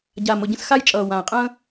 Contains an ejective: yes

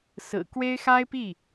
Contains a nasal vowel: no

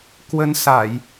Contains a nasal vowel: no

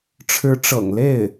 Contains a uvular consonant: no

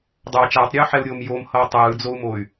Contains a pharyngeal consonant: yes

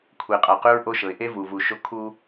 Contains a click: no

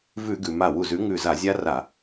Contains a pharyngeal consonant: no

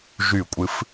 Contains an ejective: yes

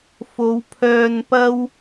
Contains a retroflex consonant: no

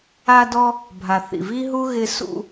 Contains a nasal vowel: no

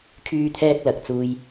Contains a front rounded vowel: yes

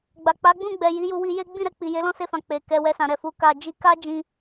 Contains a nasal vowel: yes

